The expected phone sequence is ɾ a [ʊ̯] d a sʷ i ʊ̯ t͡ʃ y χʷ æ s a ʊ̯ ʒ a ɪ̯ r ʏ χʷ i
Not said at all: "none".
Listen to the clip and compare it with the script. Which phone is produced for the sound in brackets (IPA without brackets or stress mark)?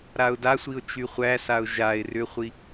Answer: ʊ̯